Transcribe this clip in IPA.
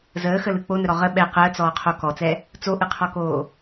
z əː x ə l ɯ k͡p o n ə ɾ ɔ ʁ ə ɓ ɛ q əː t͡s ɔː qʰ o k ɔ t͡s ɛ | t͡s o ʔ ɯ qʰ ɔ k oː

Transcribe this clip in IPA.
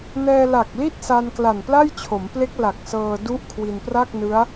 n ɛː˧ l a˨˩ k̚ l i˥˩ t̚ s a˧ n k l a˨˩ n p l a˥˩ j t͡ɕʰ o˩˦ m p l e˦˥ k̚ l a˨˩ k̚ s ɤː˧ d u˥˩ ʔ kʰ w i˧ n p r a˥˩ k̚ n ɯ˦˥ a̯

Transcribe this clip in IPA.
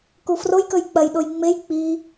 k u f r o j k ɵ j k͡p ɐ j ɗ o j ŋ͡m e j k͡p i

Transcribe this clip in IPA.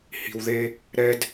h i̤˨ w ð e˦ | ɾ ɛ˦ d

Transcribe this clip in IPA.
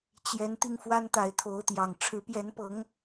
t͡ɕ j ɛ˨˦ n t̪ i˧ ŋ f w a˦ n t̪ a˨˦ ɪ̯ t̪ʰ o˨˦ ʊ̯ t̪ j ɑ˨˩ ŋ ʈ͡ʂʰ ɻ̩˨˦ p j ɛ˨˦ n p ɤ˨˦ ŋ

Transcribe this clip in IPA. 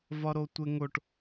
v ɒ ɾ o tʷ e ŋ o ʈ

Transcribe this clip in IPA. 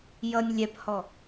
j ʌ nʲ lʲ ɛ p h ɔ

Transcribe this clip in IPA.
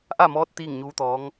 ʔ a˥˨ m ɔː˧˥ t̚ t̪ iː˥˨ ŋ ɲ uː˧˥ t̪ ɔː˧˥ ŋ

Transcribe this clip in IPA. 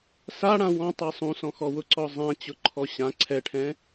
s a ɽ ã w ɔ̃ tˤ a sˤ ũ s ɔ̃ x ɔ w ʊ ǀ ɔ zˤ ã t͡ɕ ʊ ǃʰ ɔ ɕ ã ǀʰ ɛ ʈʰ ɛ̃

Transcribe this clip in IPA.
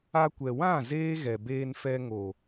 a˧ kʷ ɛ˨ w ã˦˨ z eː˦ ɣ ɛ˨ b eː˧ n f ɛ˧ ŋ o˨

